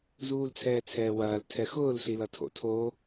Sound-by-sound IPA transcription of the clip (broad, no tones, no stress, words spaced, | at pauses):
zuːlt͡sʰɛːt͡sʰɛːwɐːl tʰɛxʊːl ɬilʌtʰo̰ tʰo